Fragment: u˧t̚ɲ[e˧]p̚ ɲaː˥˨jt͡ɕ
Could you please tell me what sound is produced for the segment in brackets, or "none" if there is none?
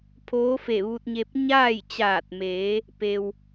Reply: e˧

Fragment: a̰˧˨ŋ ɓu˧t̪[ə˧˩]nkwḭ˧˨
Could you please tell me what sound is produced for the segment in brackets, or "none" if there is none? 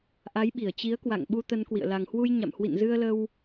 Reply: ə˧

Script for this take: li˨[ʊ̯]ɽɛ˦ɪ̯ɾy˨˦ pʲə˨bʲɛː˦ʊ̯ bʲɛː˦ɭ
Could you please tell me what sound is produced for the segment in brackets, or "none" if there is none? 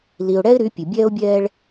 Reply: ʊ̯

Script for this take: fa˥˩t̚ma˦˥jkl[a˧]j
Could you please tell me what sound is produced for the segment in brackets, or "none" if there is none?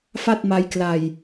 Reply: a˧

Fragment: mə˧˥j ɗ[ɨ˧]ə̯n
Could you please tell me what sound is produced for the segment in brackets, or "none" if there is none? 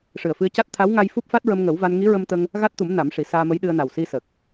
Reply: ɨ˧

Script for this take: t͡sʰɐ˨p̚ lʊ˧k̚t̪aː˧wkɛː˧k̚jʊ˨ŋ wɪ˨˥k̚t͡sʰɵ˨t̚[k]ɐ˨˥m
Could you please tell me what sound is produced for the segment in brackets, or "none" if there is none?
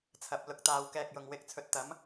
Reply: t̪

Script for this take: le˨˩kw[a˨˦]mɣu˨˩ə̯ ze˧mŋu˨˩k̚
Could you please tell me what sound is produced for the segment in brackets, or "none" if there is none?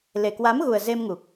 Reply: a˨˦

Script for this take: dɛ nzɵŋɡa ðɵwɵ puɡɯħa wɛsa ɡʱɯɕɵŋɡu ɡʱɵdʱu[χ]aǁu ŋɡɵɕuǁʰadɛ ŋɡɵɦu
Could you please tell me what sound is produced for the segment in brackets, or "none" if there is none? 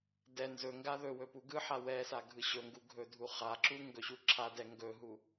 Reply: χ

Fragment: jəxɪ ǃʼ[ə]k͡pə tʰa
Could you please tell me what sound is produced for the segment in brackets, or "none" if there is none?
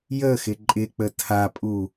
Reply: ɪ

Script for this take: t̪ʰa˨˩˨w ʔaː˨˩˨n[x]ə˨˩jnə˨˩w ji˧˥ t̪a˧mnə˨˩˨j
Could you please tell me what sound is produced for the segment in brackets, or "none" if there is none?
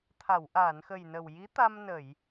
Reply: x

